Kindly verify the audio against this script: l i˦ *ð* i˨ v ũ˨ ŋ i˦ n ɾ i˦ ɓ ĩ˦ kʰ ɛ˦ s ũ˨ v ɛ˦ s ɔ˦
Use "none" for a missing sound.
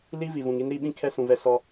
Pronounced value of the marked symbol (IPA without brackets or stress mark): v